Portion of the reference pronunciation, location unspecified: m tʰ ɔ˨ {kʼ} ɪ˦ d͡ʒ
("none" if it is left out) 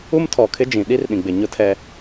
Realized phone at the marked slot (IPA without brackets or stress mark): kʰ